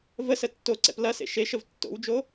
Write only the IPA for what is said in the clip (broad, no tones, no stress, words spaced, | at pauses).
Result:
vəsə tːoǀɛ̰p lɐsḛ ʃeʃəv tːo̰wd͡ʒo